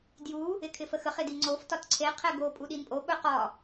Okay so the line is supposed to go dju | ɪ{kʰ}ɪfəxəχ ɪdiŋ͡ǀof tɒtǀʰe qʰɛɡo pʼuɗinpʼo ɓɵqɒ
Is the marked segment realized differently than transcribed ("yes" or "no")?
no